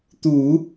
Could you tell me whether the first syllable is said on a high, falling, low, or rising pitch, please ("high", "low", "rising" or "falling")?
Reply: low